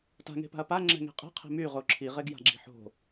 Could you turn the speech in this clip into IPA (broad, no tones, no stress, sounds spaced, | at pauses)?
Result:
t a̤ ŋ e̤ p a̤ ɐ̯ p a ŋ͡ǁ ɛ̤ ŋ e̤ qʼ e̤ qʰ e̤ m y ʁ o ǁʰ i ʁ e ɡ j a̤ ɡ͡ǁ i̤ ħ o̤